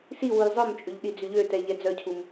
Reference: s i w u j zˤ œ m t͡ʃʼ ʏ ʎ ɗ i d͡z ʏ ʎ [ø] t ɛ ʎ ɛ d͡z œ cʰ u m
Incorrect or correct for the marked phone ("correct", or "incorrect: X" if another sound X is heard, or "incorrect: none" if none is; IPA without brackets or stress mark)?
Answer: correct